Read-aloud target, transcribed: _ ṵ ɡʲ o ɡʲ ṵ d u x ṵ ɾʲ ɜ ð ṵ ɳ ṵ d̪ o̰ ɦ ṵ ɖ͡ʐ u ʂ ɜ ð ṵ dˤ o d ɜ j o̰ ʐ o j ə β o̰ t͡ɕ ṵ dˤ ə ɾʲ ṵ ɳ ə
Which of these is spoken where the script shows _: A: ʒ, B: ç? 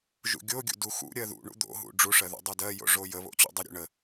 A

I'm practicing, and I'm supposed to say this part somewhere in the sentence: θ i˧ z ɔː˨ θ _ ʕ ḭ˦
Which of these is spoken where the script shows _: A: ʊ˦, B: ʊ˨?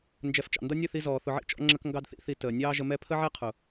B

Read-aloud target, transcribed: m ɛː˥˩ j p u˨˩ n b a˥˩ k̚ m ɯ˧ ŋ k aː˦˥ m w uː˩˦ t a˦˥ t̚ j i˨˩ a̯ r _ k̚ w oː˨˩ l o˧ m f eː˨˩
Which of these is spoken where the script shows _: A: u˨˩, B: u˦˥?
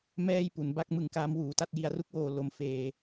B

